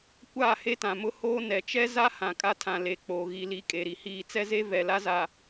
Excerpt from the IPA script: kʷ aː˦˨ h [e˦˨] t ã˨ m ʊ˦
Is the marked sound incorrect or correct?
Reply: incorrect